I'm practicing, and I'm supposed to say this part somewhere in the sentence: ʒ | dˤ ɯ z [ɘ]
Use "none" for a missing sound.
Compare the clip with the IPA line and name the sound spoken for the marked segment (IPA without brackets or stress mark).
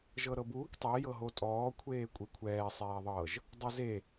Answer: e